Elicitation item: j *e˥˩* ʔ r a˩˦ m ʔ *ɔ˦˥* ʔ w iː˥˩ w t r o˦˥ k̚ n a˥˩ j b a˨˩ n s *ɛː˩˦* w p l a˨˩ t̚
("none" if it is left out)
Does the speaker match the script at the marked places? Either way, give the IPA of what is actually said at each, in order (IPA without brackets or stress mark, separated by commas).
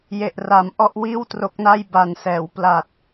e˨˩, ɔ˥˩, ɛː˩˦